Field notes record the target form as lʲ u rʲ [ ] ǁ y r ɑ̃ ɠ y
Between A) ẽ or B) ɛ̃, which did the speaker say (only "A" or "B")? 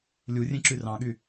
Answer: A